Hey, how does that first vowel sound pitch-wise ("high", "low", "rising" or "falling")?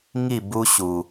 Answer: falling